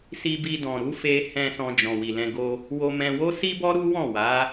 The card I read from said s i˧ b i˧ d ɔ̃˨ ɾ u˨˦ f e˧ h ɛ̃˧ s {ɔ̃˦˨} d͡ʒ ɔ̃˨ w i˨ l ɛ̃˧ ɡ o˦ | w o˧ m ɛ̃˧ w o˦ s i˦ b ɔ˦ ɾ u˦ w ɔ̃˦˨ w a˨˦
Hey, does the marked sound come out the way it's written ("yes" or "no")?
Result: no